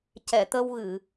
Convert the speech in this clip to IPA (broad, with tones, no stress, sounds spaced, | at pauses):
c ɛ˨˩˨ t̪ ə˧ w ɣ ɨ˨˩˨